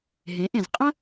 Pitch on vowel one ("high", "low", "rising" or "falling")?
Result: rising